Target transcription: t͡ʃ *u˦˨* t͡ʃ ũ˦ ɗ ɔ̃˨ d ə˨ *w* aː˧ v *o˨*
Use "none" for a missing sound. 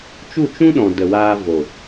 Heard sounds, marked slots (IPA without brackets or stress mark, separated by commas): u˦˨, w, o˨